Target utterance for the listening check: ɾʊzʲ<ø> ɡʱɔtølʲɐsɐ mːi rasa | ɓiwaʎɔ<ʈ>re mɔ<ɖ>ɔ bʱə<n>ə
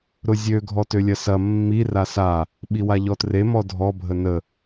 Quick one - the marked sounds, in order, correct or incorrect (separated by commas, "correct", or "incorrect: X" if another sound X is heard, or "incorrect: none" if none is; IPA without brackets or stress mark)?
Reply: correct, incorrect: t, incorrect: dʱ, correct